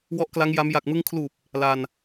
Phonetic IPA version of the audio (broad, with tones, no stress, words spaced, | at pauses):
wɔ˦˥ʔkla˦˥ŋ ja˦˥m ja˨˩k̚mɯ˧ŋkʰluː˨˩p̚ | la˧n